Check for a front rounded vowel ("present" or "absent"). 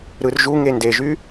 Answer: present